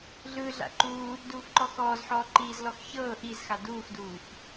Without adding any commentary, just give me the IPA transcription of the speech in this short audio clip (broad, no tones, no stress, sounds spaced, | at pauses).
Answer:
ɮ ɯː ɮ a̰ ǃ uː | d uː f ǃ ɔ x ɔː z ħ ɔː ǃ iː z l ɔ x ç ɤː ʔ i z x a d uː x d uː f